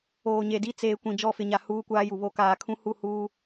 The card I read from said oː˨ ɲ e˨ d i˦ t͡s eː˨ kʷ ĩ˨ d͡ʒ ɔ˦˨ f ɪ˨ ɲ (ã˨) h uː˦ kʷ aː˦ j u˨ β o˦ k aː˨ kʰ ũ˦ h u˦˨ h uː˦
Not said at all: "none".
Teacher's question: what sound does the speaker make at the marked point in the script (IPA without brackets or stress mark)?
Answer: a˨